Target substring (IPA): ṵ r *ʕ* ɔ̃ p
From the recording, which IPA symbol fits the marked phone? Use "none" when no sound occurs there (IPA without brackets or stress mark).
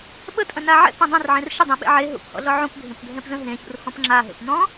h